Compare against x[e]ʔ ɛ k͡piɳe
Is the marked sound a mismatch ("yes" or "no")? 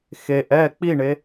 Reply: no